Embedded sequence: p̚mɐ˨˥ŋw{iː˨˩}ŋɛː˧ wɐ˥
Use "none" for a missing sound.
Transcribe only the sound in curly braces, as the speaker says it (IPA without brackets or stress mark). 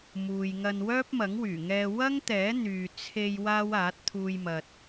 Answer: yː˨˩